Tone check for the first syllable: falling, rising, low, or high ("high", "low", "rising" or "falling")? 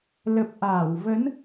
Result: low